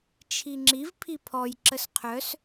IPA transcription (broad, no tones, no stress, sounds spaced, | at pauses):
t͡ʃʰ i ŋ͡ǁ i v pʰ i pʰ ɔ j ǁ ə s qʰ œ s